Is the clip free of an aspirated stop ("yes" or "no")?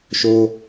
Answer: yes